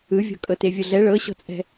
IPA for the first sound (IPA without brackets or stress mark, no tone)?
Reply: ɯ